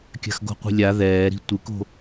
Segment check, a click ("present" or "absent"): absent